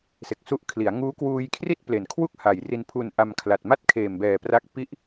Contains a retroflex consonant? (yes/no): no